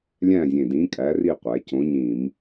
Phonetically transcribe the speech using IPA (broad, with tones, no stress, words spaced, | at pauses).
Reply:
lʲæ̃˦˨zʲẽ˨˩ dĩ˨˥kʼæ˨˥ri˦˨qʷæ˩˧ cõ˨˥ɲĩ˧˩˧m